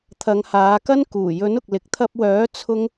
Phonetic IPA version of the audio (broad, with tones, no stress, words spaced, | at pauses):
t̪ʰɐ˨˧ŋhaː˨˧kɐ˥n kuː˨˩jɵ˨˥nʊ˨k̚ lɪ˨k̚t̪ʰɐ˧p̚wœː˨˥ t͡sʰʊ˥ŋ